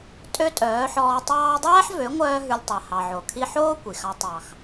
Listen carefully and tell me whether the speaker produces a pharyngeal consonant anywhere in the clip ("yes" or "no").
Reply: yes